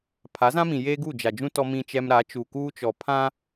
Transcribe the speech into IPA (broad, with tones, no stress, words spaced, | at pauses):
pʰa˨˦zã˦mĩ˨ jeː˦ɡu˦˨d͡ʒa˨d͡ʒũ˦ tɔ˦mĩ˦t͡ʃɛ˦m ɾa˨˦t͡ʃu˨kuː˦t͡ʃɔ˨ pʰã˦